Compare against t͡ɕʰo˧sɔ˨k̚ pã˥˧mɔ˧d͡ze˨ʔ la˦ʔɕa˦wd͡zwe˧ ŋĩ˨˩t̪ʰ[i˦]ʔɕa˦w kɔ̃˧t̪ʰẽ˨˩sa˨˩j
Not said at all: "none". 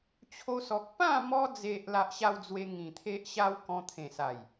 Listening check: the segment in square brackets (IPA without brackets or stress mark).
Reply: e˦